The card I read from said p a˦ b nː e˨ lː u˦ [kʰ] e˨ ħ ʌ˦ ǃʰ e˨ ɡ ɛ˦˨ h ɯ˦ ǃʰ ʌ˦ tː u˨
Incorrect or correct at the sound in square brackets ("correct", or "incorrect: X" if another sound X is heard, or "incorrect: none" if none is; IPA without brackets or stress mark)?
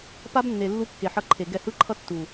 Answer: incorrect: kː